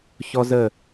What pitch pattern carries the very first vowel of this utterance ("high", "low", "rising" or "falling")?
high